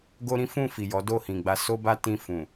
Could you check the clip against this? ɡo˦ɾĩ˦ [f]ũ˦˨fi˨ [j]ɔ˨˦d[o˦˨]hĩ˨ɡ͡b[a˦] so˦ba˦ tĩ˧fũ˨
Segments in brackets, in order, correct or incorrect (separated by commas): correct, correct, correct, incorrect